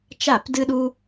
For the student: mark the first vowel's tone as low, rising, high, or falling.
falling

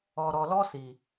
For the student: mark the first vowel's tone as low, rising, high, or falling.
low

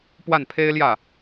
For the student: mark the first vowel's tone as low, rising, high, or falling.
falling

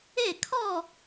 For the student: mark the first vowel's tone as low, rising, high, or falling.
falling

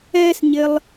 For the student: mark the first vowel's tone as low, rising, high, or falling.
high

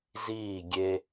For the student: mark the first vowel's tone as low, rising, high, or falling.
falling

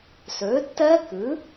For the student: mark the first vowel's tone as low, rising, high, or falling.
rising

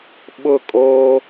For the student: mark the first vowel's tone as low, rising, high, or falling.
falling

